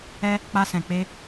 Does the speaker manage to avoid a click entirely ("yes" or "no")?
yes